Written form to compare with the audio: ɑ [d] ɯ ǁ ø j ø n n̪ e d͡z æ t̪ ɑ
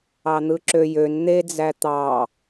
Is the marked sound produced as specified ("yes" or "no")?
no